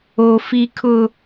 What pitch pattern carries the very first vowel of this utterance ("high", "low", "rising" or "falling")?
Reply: high